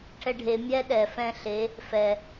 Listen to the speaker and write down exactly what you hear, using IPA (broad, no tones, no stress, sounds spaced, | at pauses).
ʈʰ ɛ ɖʱ e mʲ ɛ ɗ ɛ f ɛ̃ ɬ e | f ɛ